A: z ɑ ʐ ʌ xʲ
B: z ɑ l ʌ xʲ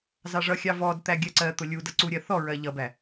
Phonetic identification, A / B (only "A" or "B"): A